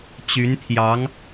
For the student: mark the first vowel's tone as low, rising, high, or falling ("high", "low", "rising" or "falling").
rising